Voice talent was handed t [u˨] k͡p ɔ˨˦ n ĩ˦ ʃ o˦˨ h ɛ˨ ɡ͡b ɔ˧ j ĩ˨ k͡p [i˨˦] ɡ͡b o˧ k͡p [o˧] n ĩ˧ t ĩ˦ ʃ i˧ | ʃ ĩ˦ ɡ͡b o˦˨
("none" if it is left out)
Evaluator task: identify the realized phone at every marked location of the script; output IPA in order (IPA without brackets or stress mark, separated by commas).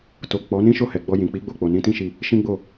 o˨, i˨˦, o˨